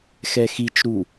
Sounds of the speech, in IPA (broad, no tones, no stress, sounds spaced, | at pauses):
x ɛ x i t͡ʃ ɾ u